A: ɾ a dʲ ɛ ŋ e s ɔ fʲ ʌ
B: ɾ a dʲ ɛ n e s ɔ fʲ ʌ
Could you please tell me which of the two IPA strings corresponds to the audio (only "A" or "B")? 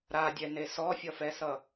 B